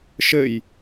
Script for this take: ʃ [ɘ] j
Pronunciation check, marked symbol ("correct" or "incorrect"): correct